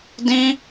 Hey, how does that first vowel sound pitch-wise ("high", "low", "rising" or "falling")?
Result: high